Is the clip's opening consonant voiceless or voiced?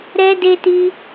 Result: voiced